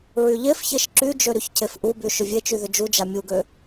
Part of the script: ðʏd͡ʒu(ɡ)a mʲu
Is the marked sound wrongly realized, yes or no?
yes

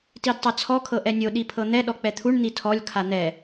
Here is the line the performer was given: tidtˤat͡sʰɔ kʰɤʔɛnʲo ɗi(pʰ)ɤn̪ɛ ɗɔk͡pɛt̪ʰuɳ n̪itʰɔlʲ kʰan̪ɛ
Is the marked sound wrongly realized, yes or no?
no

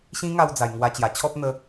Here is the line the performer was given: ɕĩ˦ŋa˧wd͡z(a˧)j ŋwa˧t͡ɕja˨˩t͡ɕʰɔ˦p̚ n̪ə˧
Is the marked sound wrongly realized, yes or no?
yes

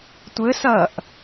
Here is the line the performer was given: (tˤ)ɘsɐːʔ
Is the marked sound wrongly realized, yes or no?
yes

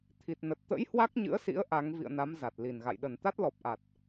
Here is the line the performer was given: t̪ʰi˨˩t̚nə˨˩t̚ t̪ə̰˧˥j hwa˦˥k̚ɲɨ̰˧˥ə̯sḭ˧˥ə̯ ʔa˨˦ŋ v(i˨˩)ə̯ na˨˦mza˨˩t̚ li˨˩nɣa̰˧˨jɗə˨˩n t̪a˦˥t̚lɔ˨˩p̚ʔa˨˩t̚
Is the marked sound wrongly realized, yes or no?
yes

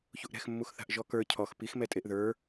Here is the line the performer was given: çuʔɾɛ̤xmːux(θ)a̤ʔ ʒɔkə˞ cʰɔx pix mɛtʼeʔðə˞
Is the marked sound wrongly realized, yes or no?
no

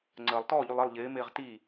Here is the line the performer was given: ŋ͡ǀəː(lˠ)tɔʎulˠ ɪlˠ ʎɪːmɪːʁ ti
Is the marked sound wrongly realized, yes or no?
no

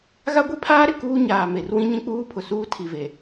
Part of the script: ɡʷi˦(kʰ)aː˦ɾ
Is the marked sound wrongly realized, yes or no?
yes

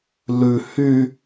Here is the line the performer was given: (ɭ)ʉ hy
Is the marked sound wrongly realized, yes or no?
yes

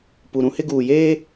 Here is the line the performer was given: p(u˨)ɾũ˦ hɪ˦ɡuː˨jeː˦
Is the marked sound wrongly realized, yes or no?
no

